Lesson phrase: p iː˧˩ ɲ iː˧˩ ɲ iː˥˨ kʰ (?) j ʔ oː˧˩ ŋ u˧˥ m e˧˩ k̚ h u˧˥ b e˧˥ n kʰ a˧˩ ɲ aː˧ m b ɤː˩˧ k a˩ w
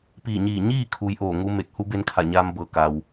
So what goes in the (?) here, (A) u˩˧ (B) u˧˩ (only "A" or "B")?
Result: A